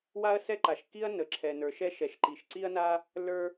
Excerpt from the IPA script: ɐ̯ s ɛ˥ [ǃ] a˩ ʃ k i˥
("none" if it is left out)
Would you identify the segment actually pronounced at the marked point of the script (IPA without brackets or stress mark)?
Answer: ǃ